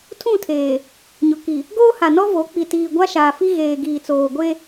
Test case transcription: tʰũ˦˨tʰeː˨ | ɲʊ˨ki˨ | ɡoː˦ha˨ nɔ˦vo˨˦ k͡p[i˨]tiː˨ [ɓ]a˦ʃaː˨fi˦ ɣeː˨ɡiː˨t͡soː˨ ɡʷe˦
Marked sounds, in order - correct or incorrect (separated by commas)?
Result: correct, incorrect